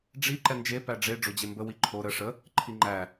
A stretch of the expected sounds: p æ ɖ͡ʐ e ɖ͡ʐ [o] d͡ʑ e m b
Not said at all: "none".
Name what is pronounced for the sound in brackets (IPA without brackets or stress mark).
o